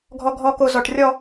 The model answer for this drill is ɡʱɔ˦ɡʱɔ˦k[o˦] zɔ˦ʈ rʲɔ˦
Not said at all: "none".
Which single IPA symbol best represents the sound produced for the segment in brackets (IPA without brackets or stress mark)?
o˦